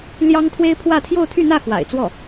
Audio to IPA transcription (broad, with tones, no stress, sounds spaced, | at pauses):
l j ɑ˥ ŋ t̪ʰ w e˥ ɪ̯ pʰ w ä˥˧ t̪ʰ j o˥˧ ʊ̯ t̪ʰ y˥˧ n̪ ä˥˩ x w a̰˨˩ ɪ̯ t͡s w ɔ˥˩